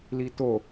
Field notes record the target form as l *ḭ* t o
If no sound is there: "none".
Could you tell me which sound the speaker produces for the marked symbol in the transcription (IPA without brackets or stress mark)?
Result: i